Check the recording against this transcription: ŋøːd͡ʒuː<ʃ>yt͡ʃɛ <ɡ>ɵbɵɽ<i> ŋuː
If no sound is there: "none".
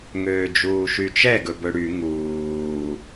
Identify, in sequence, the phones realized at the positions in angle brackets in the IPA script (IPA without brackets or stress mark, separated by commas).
ʃ, ɡ, y